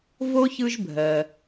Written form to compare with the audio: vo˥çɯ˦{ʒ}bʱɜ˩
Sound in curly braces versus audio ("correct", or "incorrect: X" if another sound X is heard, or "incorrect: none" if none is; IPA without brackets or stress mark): correct